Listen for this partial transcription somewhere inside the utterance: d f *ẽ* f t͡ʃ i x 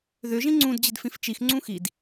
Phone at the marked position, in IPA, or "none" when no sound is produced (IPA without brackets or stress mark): ĩ